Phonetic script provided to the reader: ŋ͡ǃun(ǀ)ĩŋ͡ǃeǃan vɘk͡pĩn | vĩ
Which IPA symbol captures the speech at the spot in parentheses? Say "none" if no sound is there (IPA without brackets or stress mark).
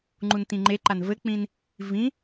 t